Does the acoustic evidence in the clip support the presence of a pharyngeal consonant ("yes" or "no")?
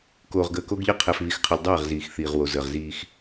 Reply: no